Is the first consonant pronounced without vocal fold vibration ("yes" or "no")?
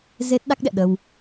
no